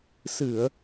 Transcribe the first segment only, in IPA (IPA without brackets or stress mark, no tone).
s